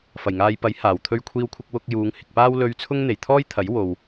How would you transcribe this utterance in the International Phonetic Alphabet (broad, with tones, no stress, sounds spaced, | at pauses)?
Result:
f ɐ˨˩ j ŋ aː˨ j p ɐ˨˥ j h aː˨ w t̪ʰ ɵ˥ ɥ kʷʰ iː˥ w kʷʰ ɪ˥ k̚ w ʊ˧ k̚ j uː˨˧ ŋ h ɪ˨ k̚ p aː˥ w l ɵ˧ ɥ t͡sʰ ʊ˥ ŋ n̪ e˨˩ j t̪ʰ ɔː˥ j t̪ʰ ɐ˨˥ j w o˨ w